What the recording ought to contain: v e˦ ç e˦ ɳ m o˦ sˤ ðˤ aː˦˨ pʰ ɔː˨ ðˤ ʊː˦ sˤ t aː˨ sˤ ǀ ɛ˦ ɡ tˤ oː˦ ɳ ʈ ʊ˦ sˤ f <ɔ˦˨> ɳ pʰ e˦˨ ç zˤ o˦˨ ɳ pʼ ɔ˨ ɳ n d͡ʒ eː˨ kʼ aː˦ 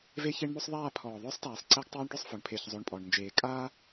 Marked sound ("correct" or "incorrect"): incorrect